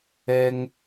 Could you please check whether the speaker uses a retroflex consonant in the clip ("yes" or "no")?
no